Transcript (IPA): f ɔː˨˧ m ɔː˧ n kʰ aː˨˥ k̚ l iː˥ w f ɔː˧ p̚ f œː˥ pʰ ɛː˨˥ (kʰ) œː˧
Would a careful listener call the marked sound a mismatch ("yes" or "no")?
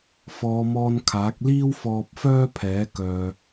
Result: yes